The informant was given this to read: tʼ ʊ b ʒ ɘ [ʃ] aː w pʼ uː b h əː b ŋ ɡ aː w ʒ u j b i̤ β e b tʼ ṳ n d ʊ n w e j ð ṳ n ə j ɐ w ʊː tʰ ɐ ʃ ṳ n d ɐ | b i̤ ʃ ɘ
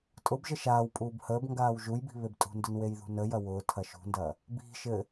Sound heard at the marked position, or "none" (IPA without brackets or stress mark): ʃ